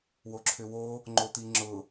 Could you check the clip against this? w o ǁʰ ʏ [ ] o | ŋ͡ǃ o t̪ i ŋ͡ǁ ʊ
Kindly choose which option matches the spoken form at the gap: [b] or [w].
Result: w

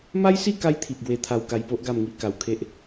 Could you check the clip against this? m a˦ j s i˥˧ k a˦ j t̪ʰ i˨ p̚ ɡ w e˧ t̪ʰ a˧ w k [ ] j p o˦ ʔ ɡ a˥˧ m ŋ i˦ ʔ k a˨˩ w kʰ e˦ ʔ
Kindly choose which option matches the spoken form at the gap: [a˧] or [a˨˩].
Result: a˧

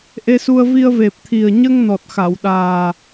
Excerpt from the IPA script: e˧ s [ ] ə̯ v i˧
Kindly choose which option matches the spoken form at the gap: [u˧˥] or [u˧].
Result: u˧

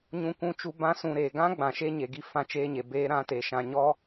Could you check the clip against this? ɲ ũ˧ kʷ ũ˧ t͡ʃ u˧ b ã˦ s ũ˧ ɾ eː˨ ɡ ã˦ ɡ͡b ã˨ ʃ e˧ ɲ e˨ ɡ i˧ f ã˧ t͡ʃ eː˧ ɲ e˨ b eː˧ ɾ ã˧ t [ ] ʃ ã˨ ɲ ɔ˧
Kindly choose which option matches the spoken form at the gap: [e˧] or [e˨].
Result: e˨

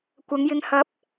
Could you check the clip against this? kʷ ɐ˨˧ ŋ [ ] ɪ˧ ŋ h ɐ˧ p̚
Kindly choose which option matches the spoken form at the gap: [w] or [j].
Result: j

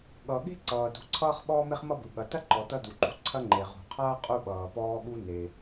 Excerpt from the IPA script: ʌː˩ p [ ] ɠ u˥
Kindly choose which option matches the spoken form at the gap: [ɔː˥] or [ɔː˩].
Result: ɔː˥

